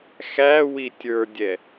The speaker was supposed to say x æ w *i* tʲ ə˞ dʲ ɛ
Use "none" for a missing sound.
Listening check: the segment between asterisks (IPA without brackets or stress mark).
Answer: i